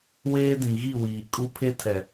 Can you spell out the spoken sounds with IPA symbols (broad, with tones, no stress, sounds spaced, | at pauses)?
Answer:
w eː˦ d ĩ˨ ɣ i˦˨ w iː˨ kʼ u˦ pʰ e˦ tʰ ɛ˨